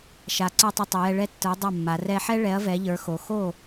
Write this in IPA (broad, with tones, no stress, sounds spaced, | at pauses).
ʃ a˩˧ ǀ ə˞˧ tˤ ɛ˧ tˤ o˩˧ j ɛ˧ ɭ ɛ˥ tː ə˞˨˥ dˤ a˥˩ mː a˩˧ r ɛ˧ ħ ɛ˥ ɭ ɛ˨˥ ɐ̯ v ɛ˨˥ ʎ ə˞˨˥ x o˩˧ x o˥˩